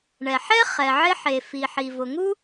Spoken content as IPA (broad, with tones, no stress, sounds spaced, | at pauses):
ɳ ɛ˩ ħ ɛ˥ χ ɛ˩ ʕ ɪ˥ ħ e˩ f i˩ ħ i˩ v ʊ˩ ŋ u˥